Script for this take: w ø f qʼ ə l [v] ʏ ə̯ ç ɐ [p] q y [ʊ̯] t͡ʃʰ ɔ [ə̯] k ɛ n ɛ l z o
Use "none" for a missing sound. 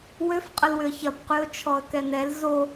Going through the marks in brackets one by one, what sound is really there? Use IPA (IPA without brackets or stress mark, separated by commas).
w, p, ʊ̯, ə̯